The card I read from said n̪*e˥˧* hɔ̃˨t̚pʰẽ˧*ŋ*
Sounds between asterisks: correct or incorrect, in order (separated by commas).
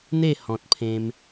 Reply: correct, incorrect